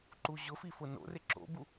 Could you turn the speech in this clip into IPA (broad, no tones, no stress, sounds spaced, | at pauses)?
ǃ u ʑ ʊ f i f ʊ n o̰ r ɪ ǁ o̰ b u